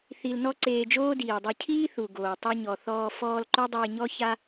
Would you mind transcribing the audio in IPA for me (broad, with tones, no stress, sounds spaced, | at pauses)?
θ i˧ l n ɔ˥ ǀ eː˧ d͡ʒ oː˥ d iː˩ dˤ o˧ cʰ iː˥ θ u˩ ɡ oː˩ tˤ o˧ ɲ ɔ˩ θ ɔː˧ f ɔː˧ l ǃ o˥ dˤ iː˧ ɲ ɔ˥ ç a˥